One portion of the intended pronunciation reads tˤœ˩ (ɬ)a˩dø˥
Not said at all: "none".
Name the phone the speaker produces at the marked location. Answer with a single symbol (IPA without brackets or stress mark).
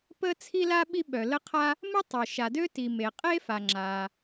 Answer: ʃ